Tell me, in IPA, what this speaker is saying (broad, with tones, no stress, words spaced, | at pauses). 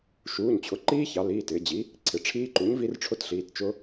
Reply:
ʃuː˩˧˩ɲt͡ɕʰʊ˩˥ǃiː˦˥çɑ˩˧ liː˩˧˩tɪː˩˧d͡ʑi˩˥ | ǀʰɪ˩˧˩ ʈ͡ʂʰiː˦˥ǃu˩˥ɲvi˦˥r ʈ͡ʂʰʊ˦˥tɬiː˩˧˩tt͡ʃʊ˦˥